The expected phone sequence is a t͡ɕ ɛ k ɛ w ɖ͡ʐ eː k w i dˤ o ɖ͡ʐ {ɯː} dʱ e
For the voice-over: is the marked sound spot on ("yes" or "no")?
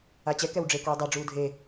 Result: no